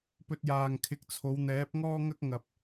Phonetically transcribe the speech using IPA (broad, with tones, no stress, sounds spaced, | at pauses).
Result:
p ɵ˧ t̚ j aː˨ ŋ kʰ ɪ˨˥ k̚ t͡sʰ o˨˧ w n̪ ɛː˨˥ p̚ ŋ ɔː˥ ŋ ɐ˥ k̚ ŋ ɐ˨ p̚